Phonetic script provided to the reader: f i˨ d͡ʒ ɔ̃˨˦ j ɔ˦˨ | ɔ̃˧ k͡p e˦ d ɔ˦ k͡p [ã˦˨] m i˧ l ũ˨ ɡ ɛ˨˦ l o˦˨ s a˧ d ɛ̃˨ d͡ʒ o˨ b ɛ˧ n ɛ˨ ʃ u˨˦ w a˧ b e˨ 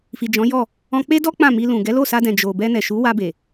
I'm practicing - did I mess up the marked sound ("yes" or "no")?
no